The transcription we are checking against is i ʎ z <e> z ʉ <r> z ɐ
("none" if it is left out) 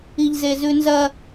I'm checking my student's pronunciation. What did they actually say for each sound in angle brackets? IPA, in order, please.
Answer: e, n

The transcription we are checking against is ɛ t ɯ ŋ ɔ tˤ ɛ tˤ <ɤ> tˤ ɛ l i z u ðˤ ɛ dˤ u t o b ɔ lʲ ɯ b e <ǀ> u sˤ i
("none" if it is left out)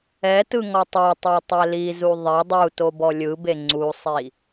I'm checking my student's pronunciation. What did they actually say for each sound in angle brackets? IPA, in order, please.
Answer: ɤ, ŋ͡ǀ

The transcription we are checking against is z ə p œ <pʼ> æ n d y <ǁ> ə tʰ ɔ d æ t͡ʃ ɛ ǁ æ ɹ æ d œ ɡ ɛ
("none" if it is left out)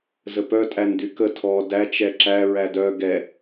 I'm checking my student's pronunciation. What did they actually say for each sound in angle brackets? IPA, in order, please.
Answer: tʼ, k

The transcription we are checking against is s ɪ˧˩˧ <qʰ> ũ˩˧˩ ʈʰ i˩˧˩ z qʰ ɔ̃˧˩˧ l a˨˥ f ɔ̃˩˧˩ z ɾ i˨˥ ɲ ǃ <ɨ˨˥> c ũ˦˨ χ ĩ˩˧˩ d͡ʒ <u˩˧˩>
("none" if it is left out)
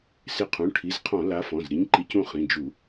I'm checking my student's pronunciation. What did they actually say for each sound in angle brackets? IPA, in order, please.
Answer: qʰ, i˨˥, u˧˩˧

